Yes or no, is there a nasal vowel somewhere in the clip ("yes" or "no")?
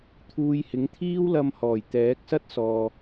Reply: no